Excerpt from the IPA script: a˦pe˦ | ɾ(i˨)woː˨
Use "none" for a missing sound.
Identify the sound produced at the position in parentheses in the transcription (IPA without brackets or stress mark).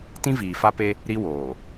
i˦